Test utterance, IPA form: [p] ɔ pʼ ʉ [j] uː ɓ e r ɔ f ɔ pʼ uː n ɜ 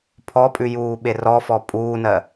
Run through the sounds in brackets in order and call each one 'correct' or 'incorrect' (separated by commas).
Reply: incorrect, correct